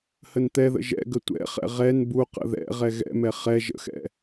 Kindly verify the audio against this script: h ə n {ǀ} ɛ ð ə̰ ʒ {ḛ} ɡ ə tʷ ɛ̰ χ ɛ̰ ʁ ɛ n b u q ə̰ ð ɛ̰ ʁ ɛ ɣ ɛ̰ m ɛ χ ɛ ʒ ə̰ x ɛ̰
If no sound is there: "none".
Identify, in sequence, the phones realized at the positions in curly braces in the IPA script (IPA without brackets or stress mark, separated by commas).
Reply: t̪, ɛ̰